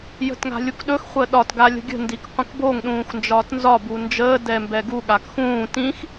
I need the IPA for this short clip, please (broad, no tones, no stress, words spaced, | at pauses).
jə̤tŋa̤lʲukɗɵx χʷəːɗɒt ɡalʲə̤ɡʲə̤ ndikqʷə̃kboŋ ɗũːxnd͡ʒɒːtnzɒ bund͡ʒəː dɛmbɛɡu ɠakxũː tĩx